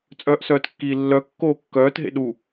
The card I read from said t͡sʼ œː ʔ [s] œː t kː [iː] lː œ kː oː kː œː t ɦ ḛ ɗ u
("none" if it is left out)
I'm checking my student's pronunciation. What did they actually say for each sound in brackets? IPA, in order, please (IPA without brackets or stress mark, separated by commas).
s, iː